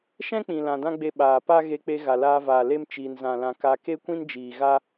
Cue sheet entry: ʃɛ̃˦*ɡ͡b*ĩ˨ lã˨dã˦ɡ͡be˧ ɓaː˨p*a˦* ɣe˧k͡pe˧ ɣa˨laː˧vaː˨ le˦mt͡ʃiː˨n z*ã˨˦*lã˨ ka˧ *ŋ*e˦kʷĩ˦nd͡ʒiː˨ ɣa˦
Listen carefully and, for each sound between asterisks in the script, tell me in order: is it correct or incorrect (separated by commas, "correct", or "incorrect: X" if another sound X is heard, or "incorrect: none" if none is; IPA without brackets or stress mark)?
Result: incorrect: k͡p, correct, incorrect: ã˨, incorrect: k